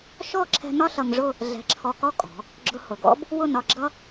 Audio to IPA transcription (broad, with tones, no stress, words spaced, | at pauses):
ʃɔ˥˧ ǁʰɛ̤˧ nɒ˥ɬʌ˧ŋʐʊ˥˧ | ɮɛ̤˧˩ǁʰɔ˧kɔ˥ kʼɔ̤˩˧ | ɡ͡ǁʊ˧hʊ˩˧ɡɔ̰˥b | wʊ˥˧nɒ˧ɡ͡ǁʌ˥